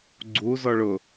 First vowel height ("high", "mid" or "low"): high